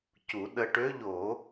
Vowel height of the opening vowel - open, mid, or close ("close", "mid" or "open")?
close